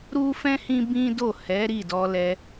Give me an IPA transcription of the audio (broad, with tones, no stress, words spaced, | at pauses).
ɾu˦fɛ̃˦ hĩ˦ bĩ˦do˦˨ hɛ˨˦ ɾi˦˨ dɔ˧lɛ˧